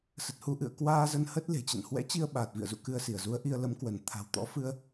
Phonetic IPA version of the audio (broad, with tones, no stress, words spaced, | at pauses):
sə˨˩t̚hu˧ʔɨ̰˧˨ə̯ kwaː˧zə˧n hə˦˥t̚ le̤˨˩t͡ɕə̰˧˨n hwɛ̰˧˥t͡ɕi˧ə̯ ɓaː˨˩t̚vḭ˧˨ə̯zṵ˧˨ kɨ˧ə̯si˧˩ə̯zu˨˦ə̯ʔi˧ə̯ lə˨˦mkwə˧˩n t̪ʰa̤˨˩wt̪ɔ̰˧˥fɨ˧ə̯